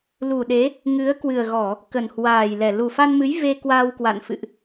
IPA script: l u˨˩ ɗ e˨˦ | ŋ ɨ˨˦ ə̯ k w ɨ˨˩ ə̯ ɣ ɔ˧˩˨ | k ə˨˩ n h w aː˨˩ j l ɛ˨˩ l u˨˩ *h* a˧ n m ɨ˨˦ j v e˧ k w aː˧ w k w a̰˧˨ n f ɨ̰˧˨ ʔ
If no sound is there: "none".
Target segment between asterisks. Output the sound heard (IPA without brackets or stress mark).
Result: f